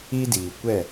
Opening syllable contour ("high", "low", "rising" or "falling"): high